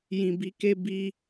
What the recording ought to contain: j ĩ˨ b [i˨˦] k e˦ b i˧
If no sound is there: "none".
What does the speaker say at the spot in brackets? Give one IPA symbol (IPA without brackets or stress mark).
i˨˦